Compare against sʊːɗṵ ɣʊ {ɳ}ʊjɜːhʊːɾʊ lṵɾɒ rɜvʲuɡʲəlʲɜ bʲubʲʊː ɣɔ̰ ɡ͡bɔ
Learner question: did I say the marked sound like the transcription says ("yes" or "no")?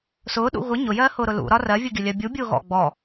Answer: no